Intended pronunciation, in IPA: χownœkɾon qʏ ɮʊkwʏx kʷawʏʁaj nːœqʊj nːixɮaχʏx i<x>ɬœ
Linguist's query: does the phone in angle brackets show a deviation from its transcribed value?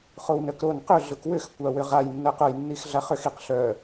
yes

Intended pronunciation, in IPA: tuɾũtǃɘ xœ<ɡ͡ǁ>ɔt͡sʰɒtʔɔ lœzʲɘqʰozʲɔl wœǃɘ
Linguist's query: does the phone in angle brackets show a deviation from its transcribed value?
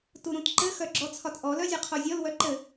no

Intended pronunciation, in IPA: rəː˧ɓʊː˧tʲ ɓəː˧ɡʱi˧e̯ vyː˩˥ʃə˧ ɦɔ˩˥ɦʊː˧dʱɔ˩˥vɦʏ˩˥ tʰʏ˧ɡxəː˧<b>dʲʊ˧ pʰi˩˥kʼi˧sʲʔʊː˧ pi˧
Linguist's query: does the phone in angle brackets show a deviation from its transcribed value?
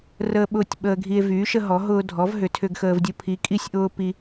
yes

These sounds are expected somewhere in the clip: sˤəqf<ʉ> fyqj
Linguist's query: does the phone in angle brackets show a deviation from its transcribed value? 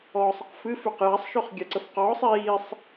yes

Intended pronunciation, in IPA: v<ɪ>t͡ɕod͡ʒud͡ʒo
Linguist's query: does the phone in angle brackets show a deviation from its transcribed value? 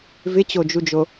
no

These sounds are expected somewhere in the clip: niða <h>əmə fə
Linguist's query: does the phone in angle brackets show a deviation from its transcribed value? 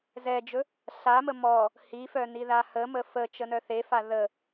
no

